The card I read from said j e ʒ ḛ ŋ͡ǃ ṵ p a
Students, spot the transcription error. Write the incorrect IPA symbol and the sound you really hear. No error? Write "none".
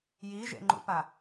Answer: e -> i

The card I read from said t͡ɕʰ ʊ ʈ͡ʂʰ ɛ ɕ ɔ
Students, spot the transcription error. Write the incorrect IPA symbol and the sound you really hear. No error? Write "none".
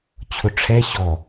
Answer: none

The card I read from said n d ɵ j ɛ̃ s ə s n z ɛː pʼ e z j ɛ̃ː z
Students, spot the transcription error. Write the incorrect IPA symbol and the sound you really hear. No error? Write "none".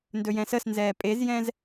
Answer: none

